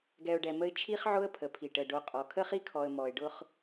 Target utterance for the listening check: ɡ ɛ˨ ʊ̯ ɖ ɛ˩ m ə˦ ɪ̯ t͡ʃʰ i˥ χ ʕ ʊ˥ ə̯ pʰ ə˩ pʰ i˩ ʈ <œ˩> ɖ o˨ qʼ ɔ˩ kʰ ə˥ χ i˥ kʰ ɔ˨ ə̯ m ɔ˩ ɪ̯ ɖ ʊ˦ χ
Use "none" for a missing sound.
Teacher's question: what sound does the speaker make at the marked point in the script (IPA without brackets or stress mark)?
ə˩